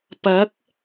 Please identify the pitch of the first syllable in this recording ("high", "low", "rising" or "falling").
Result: rising